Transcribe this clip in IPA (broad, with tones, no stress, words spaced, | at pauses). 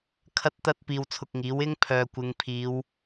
kʰɐ˧t̚t̪ɐ˧t̚ piː˧wt͡sʰʊ˧k̚ŋiː˨˥wɪ˥ŋ pʰœː˨kʷɪ˨˧ŋpʰiː˨˧w